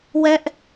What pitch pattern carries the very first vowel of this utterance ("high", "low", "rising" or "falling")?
high